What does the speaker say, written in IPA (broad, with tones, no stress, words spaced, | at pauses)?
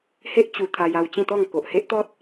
he˦ʔ t͡ɕu˧t̪ʰa˧j a˧wt͡ɕĩ˥˧t̪ɔ˥˧ŋ ko˨ʔhe˦ʔt̪ɔ˦t̚